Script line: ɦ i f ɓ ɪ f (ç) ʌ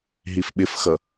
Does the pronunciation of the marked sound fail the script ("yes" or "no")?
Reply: yes